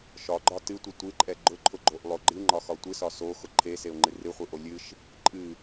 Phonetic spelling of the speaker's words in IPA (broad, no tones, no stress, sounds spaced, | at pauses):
ʃ ɒ ɡ͡ǃ ɒ t ɨ tʷ ɨ tʷ ɨ ǃʼ ɛ ɡ͡ǃ ʊ ǃʰ ʊ ɡ͡ǃ o ʔ lˠ o ɡ͡ǃ ɨ ŋ͡ǃ ɒ x ɒ tʷ ɨ s ɒ s o x ʊ ǃʰ e s e ʊ̯ ŋ͡ǃ ɨ r ɨ χʷ ɨ ʔ o lʲ ɨ ʃ | ǃʼ ɨ